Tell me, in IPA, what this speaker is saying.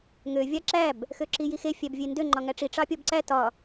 ŋ ø vʲ ɑ ǁ æ b | x ø ǁ i j i x e fʲ æ b vʲ e n d ø ŋ͡ǃ ɒ ŋ æ ʈ͡ʂ i ʈ͡ʂ ɑ pʲ ɔ b ǀ æ t ɒ

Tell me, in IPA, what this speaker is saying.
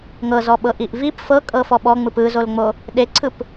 ŋ ɤ z ɔ ɓ ɤ ʔ i ʔ v i p f ɤ kʼ ɤ f ɔ ɓ ɔ ŋ͡m ɯ p ɯ z o l ŋ͡m o | ɗ e ǀʰ ɯ p

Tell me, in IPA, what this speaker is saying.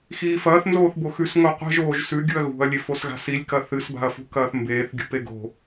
x iː f ɐː θ n z oː θ b o x ʉ s ŋ o qʷ e̤ ʒ oː ʒ s ʉ ɡʲ u ɐ̯ ɣ ṳ ɐ̯ lʲ e f o s ɣ a̤ s i lʲ k ɐ θ ɨ s b a̤ ɐ̯ f ṳ k ɐː θ m b eː θ ɡʲ ṳ p e ɡ o̤

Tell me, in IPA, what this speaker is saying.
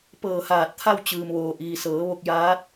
p ɤː˧˩ h aː˧˩ t̚ t̪ʰ a˥˨ w t͡ɕ ɯː˩ m ʋ oː˩ ʔ iː˩ s ɤː˩˧ ʋ o˧ k̚ j aː˧˥ t̚

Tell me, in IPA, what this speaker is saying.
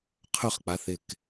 qʰ ɵ χ k͡p a θ ɪ k

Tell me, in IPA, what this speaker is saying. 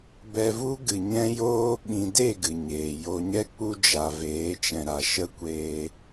b ɛ˧ v u˦ ɡ ɨ˨ ɲ ɛ̃˦ j oː˦ ɓ ĩ˨ d e˦˨ ɡ ɨ˨ ɲ eː˨ j o˨ ɲ ɛ˦ k͡p u˦ d͡ʒ a˨ v eː˨˦ t͡ʃ ɛ̃˨ ɾ a˨ ʃ ə˦ kʷ eː˧

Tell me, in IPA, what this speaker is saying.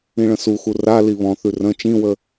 ĩ ɭ ə̃ s u x u r a l i β ɔ̃ θ ʉ r ə̃ t͡ʃ ĩ w ə

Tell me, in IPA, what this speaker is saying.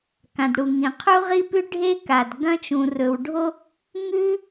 k ã˩ d ɽ u˩ ŋ ĩ˩ qʰ u˥ ʁ i˥ p ʉ˥ ɖʱ e˥ k a˩ d ɡ ɐ̃˥ t͡ʃ ũ˩ r ɵ˩ w ɖʱ o˥ | ŋ ʉ˥

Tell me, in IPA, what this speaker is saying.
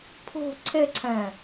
pʰ ṳ ǀʰ ɪ ǀʰ ɛ̃

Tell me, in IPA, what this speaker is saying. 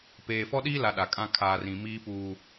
p eː˨ f ɔ˦ ɗ iː˦ l a˨ ɗ a˨ kʼ ã˦ kʰ aː˨ r ĩ˨ m iː˦ p uː˦

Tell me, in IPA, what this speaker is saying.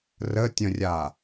r ə tʲ ə̃ rʲ a

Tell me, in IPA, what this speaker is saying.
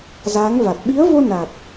z aː˨˦ ŋ v a˨˩ t̚ ɓ i˨˦ ə̯ v o˧ n a˨˩ t̚

